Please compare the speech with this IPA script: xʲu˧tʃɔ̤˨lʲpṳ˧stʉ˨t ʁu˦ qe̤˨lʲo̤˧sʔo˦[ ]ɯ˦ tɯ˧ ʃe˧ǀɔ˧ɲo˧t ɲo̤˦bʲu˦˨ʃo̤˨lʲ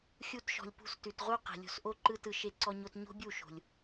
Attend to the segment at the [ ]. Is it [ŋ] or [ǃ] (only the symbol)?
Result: ǃ